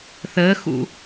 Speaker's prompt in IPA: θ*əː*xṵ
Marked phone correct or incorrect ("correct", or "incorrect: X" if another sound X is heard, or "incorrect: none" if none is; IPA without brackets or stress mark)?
correct